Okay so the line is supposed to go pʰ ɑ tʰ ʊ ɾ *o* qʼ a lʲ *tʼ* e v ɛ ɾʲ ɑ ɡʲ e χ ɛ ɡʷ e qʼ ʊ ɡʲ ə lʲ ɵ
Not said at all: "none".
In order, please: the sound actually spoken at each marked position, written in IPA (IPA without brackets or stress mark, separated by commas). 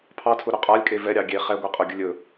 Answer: ɵ, kʼ